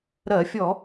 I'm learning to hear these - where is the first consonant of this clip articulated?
tongue tip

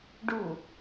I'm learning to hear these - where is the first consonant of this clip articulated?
retroflex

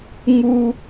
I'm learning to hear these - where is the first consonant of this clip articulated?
velum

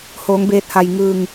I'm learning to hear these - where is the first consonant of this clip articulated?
throat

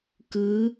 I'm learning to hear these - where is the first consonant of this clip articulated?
velum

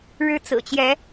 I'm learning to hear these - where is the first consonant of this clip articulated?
retroflex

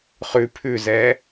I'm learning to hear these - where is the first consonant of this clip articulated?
uvula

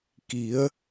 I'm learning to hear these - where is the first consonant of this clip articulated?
velum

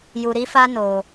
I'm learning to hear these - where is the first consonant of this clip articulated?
palate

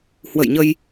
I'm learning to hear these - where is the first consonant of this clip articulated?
throat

